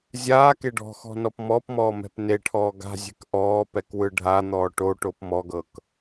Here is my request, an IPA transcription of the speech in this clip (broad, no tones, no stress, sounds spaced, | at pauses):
zʲ aː k e ɖ ɔ̤ x ɔ̤ n ɔ p m ɔ p m ɔː m ɛ̤ p n e ʈʰ ɔː ɡ a̤ zʲ ɛ̤ k ʔ ɔː p ɛ k w ɯ ɖʱ a n̪ ɔː ʈ o ʈ o p m ɔ ɡ ɤ k